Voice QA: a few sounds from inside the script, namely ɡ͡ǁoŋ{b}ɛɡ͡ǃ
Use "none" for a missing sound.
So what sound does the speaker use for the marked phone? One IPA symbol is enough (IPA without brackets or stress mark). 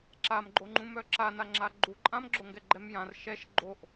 ɡ